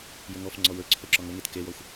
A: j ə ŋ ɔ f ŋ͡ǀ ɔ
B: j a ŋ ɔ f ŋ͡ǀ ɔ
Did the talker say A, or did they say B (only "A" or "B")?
A